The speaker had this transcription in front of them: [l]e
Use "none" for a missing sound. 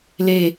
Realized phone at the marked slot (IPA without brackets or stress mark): l